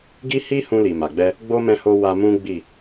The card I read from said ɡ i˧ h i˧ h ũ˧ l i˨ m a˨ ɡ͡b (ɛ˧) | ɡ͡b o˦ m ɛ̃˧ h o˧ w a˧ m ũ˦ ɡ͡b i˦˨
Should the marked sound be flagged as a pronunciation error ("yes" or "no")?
no